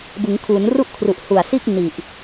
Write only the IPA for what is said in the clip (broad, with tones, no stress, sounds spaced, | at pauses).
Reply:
b ɯ˩˦ ŋ kʰ uː˩˦ n r u˥˩ ʔ kʰ r u˨˩ ʔ h u˨˩ a̯ s iː˥˩ k̚ n i˨˩ ʔ